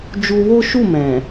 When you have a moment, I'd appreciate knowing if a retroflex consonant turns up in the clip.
no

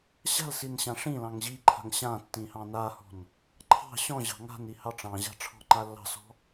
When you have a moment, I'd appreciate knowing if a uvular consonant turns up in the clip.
no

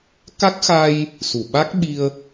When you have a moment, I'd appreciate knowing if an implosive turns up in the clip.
yes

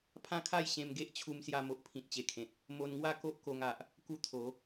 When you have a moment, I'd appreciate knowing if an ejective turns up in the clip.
no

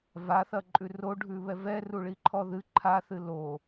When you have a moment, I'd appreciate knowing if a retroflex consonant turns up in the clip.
yes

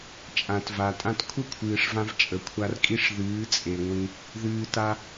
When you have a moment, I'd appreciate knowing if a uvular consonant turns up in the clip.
no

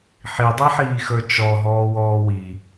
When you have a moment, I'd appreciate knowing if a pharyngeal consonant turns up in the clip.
yes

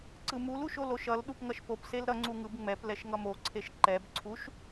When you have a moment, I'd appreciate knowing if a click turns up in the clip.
yes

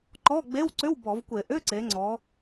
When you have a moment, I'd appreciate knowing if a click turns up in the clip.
yes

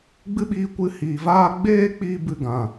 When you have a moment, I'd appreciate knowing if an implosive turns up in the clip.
yes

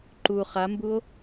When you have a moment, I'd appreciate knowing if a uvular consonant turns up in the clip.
yes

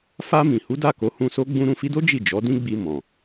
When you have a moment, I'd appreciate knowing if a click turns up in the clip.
no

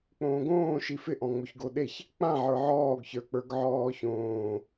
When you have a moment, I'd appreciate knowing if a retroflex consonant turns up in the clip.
no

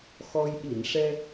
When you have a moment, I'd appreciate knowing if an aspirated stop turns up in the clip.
no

